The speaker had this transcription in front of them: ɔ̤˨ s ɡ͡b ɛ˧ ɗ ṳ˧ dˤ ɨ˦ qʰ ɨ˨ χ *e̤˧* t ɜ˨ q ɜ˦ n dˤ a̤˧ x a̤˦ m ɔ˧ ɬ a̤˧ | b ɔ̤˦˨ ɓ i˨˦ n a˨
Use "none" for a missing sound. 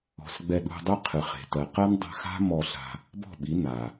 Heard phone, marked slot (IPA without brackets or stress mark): e̤˨